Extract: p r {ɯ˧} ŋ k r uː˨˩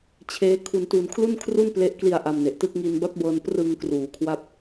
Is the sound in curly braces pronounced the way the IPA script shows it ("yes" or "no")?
yes